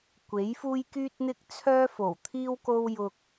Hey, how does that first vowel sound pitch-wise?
rising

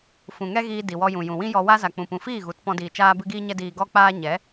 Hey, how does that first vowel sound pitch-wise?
low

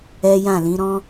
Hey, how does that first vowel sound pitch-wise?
high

